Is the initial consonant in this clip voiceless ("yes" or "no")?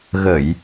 no